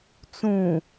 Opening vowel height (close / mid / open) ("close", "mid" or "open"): close